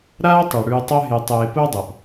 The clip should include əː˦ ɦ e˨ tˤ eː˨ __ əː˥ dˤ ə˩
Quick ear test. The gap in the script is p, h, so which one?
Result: p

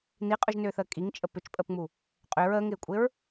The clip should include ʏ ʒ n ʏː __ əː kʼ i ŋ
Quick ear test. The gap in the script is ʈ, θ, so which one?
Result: θ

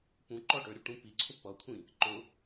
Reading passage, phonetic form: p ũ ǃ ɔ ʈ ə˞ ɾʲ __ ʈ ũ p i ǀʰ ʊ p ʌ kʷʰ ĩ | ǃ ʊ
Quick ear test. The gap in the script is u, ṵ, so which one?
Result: u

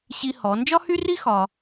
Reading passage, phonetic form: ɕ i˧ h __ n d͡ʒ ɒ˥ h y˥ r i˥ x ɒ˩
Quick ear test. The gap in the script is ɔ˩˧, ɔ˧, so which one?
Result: ɔ˩˧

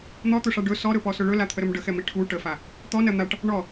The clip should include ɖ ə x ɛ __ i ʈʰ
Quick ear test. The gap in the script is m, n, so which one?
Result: m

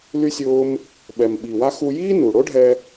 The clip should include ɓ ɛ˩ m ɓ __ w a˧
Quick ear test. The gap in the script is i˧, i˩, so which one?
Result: i˩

